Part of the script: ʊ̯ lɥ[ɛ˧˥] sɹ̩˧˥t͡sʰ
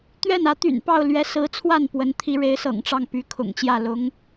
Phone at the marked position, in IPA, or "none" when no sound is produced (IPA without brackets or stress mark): ɛ˧˥